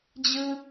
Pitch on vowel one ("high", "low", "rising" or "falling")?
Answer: high